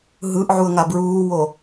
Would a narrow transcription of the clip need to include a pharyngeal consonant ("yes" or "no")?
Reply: yes